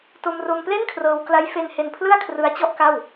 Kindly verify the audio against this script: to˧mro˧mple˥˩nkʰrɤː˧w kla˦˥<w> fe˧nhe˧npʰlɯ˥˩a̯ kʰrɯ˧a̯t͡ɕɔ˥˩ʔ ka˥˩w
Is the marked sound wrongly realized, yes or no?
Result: yes